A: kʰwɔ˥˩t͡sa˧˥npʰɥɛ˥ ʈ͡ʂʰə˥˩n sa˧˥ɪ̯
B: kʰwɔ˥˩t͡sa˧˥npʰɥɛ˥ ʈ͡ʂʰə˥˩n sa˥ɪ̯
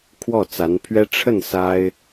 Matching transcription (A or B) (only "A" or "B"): B